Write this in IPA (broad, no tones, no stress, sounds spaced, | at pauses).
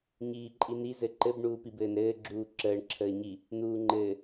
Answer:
ɲ iː ǃʼ i n i z ɘ ǃ ɘ b ɳ uː p i b ɘː n ɾ ɘː ɡ͡ǁ uː ǁ əː ɳ ǁʰ əː ɲ i | n uː ŋ͡ǃ ɘː